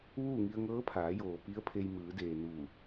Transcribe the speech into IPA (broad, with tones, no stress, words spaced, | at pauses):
ʋuː˥˨ŋi˧ə̯ ŋɤː˧˥pʰaː˩˧joː˩ pi˧˥ə̯pʰe˧j mɯː˩˧deː˩ nuː˧˩